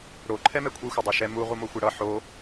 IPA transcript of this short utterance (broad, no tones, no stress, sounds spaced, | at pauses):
ɽ o ǃʰ ɛ m ɛ kʷʰ i xʷ ʌ dˤ e ʃ ɛ m u ʁ u m o xʷ e ɽ ʌ ħ o